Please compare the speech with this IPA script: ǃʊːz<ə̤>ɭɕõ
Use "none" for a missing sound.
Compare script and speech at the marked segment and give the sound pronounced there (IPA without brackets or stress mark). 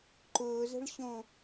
ə̤